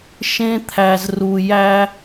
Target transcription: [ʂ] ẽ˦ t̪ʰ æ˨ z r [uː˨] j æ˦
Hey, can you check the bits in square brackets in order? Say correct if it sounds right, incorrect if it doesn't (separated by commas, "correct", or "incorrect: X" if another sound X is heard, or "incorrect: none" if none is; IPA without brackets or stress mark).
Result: incorrect: ʃ, incorrect: u˨